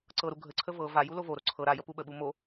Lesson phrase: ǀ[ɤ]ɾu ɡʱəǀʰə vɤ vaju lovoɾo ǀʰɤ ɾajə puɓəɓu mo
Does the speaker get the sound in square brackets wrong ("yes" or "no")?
no